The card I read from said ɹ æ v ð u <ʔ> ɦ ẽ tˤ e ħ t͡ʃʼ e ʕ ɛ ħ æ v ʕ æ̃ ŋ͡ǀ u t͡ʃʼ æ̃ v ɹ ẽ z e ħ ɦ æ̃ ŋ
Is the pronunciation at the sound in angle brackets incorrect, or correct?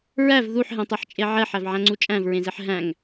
incorrect